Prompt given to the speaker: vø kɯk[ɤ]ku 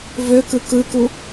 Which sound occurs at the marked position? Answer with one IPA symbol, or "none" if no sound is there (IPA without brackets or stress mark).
ɯ